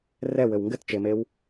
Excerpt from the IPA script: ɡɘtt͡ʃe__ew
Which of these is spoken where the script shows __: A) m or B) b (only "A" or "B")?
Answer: A